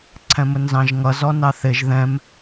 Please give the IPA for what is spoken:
ǀʰ ɛ̃ m ə n z ɑ̃ ʒ ŋ ʌ z ɔ n ɑ θ ɪ ʒ ð ɛ̃ m

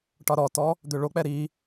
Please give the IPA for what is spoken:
ʈ ɒ ɾ ɔ t ɔ | d̪ ø ɭ o k͡p ɛ ɾ i

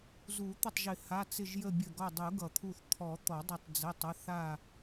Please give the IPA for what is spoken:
z u˨˩˦ t̪ ə˧˩ tˤ ʒ ɪ˨˩˦ h a˩˧˩ t͡s ɪ˧˩ ʒ j ə˧˩ bʲ ə˧˩ ɡ ɔ˧˩ dˤ u˨˩˦ ɡ ʌ˨˩˦ t̪ʰ u˧˩ θ t̪ʰ ɔ˨˩˦ t̪ ɔ˨˩˦ dˤ ə˧˩ tˤ d͡z ə˩˧˩ tˤ ʌ˩˧˩ θ a˧˩

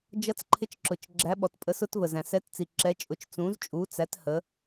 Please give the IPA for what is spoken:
d͡ʒ ʌ˨˦ t͡s ǃʰ ɪ˨˦ t͡ʃ ǁ ʊ˩ t͡ʃ ɡ͡ǁ æ˨˦ ɓ ɔ˩ t pʼ ə˨˦ s ʊ˨˦ t v ə˩ z æ̃˩ s ɛ˨˦ t t͡s i˩ ǁ ɛ˨˦ t͡ʃʼ ʊ˨˦ t͡ʃ t͡s ũ˨˦ z t͡ʃʼ u˨˦ t͡s æ˨˦ t h ə˨˦

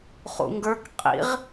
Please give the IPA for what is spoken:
χ ṵ ŋ ɡ ə˞ k qʼ ḭ ʁ

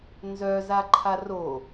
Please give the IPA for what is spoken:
n z œ z a ǃʰ a r o

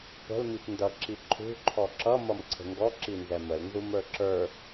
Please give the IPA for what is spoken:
p ə̤ l m i p n d ʌ ǁ i ǃʰ ṳ ǃʰ ɔ ǁ ʌ m ʌ m ǀʰ ə̤ ŋ ɡ ɔ ǁ i n z ɛ m ə l n z u m ə˞ ǁ ə˞

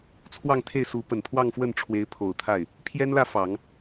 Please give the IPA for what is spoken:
t͡sʰ w ɑ˥˧ ŋ t̪ʰ e˥˩ ɪ̯ s u˧˥ p ə˨˩ n pʰ w ɑ˥˧ ŋ f w ə˥˩ n ʈ͡ʂʰ w e˧˥ ɪ̯ pʰ o˨˩ ʊ̯ t̪ʰ a˥˩ ɪ̯ | pʰ j ɛ˥ n l ä˥˩ f ɑ˨˩˦ ŋ

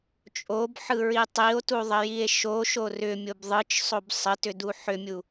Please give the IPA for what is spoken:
t͡ʃʼ o b ħ ɯ ɹ i tˤ i o̯ t u ðˤ ə j i e̯ ʃ o ʃ o r ʏ mʲ o b ðˤ ɯ t͡ʃ sˤ o b sˤ ə t ʏ d u ħ ʏ mʲ u

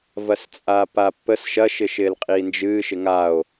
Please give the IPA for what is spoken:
v ɐ s t͡sʼ aː p a pː ə s ʃ ɐ ʃ ɪ ʃ ɪː l qʼ iː n d͡ʒ ɨː ʃ ɪ ŋ a o̯

